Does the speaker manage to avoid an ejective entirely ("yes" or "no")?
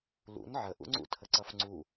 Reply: yes